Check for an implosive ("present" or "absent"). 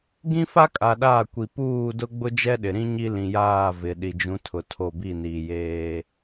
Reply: present